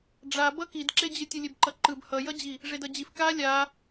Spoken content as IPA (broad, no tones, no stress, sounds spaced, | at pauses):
ɖ͡ʐ a b ʌ k i d ǁ e d͡ʑ ɯ tʲ ɯ lʲ e b ǃ ʌ ǃ ɯ b h ʌ j ʌ d͡ʑ i | ʐ e d ʌ d͡ʑ i f k a lʲ a